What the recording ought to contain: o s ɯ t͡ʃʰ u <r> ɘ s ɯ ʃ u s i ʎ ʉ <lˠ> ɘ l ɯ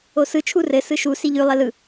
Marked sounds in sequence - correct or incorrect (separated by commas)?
correct, correct